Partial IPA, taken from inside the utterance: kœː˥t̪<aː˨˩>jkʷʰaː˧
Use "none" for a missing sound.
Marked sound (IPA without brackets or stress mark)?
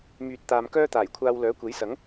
aː˨˩